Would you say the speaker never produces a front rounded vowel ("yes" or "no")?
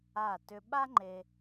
no